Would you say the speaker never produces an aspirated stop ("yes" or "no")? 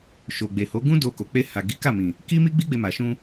yes